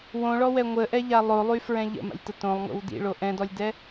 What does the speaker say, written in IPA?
w õ ɭ ɔ w ɛ ŋʷ ə ʔ ɛ ʎ a lˠ o lˠ y f ɹ ɛ̃ ʎ ə̰ m a̰ lʲ t ə t õ lˠ ŋ o̰ w d ḭ ɭ o ʔ ɛ̃ d ɔ lʲ d ɛ

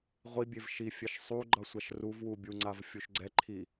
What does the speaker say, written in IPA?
ʁʷ i bʲ e v ʃ i fʲ ɛ ʃ sˤ u ɡ͡ǃ ʌ sʷ a ʃ r u v w u bʲ u ŋ͡ǀ a v fʲ u ʃ ɡ͡ǀ ɛ ǃʰ i

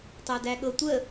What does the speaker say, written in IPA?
tˤ æ d æ ɠ ɤ tʷ ə

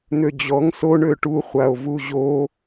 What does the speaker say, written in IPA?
n̪ ø d͡ʑ ɔ ŋ s o ɳ ø ʈ u χʷ a o̯ v u ʑ o

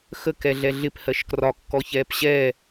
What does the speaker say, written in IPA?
x ə k ɛ ɮ ɛ ɮ ɪ p h ɜ ʃ k r ɒ kː ɔ ç ɛː p ɕ ɛː

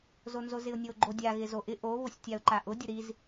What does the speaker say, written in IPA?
z o n z o z ɪ ʊ̯ nʲ o ɡ͡ǃ o dʲ a ɣ ɪ z o ʔ ɪ ʔ o β ʊ sʲ tʲ a ʊ̯ ǃ a ʔ ʊ dʲ ʊ ɾ i z

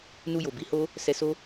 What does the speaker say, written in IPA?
n u˧ j o˨ b i˨˦ h o˦ | s ɛ˧ s o˦

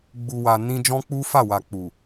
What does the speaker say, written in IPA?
ɡ͡b u˨ w a˨ n ĩ˧ d͡ʒ ɔ̃˦ k͡p u˦ f a˦˨ w a˨ k͡p u˨

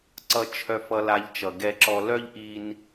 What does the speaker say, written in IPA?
ǀ ʌ˧ t͡ʃʰ œ˧ f ʌ˧ l a˧ ʎ t͡ʃ ʌ˩ ɡ ɛ˧ ǁ ɔ˧ l œ˥ ʎ ʔ i˧ n

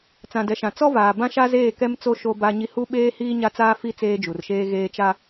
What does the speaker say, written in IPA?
t͡s ã˨ d ɛ˨ ʃ ã˨ t͡s ɔ˦ v aː˨ b ã˦ ʃ a˦ z eː˦˨ k ɛ˦ m t͡s o˦ ʃ o˦ b a˦ ɲ i˦ h u˦ ɓ eː˦ h iː˦ ɲ a˦ t͡s aː˦ f i˦ t͡s eː˦ d͡ʒ u˨ r ʃ eː˦ ɣ eː˦ t͡ʃ a˦

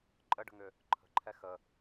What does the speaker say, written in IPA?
ǃʼ ə ɖ ə̤ ŋ ʏ | ǃʰ ə̤ ǃʰ ɛ x ə

